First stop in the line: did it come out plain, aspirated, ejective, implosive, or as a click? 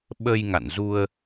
implosive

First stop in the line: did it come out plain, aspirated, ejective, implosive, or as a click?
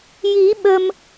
implosive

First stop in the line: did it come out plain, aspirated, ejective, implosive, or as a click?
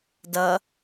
plain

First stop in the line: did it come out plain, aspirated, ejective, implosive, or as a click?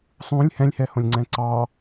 click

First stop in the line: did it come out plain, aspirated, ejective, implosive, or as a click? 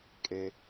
ejective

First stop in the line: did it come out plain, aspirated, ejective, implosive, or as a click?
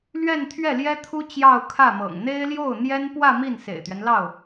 aspirated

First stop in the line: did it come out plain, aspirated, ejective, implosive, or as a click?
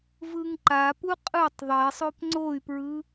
click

